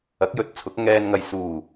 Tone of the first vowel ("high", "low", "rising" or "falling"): rising